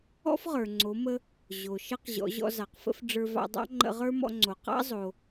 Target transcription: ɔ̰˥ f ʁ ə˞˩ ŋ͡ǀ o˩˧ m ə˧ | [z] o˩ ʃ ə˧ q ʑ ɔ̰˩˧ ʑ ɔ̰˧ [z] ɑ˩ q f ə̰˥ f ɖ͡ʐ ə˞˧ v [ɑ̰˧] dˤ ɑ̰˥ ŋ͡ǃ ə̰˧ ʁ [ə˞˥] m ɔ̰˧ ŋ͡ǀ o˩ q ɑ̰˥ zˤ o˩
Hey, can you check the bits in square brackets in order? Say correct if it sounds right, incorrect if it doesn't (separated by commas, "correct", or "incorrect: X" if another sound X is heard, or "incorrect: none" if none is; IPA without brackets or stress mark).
incorrect: ʑ, correct, correct, correct